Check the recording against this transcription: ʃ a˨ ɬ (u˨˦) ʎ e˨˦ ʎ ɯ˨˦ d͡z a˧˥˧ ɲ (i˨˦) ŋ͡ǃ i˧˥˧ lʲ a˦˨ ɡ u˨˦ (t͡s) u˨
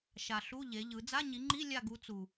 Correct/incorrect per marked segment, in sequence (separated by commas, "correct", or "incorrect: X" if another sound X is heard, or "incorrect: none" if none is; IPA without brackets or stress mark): incorrect: u˧˥˧, correct, correct